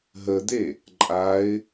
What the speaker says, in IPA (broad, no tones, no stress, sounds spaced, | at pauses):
ɦ ə d̪ e | ǃʼ a ɪ̯